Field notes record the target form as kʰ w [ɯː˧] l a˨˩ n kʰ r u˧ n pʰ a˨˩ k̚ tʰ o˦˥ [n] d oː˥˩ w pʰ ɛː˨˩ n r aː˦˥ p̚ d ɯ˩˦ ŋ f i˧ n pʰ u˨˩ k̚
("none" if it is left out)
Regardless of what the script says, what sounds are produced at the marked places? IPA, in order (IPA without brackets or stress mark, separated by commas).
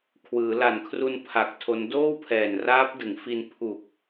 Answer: ɯː˩˦, n